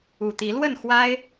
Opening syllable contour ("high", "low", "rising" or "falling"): low